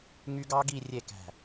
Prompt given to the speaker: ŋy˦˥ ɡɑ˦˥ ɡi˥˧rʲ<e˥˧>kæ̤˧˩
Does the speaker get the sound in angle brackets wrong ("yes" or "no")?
yes